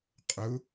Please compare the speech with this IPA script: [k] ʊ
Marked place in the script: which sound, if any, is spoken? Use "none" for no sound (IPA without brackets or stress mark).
qʼ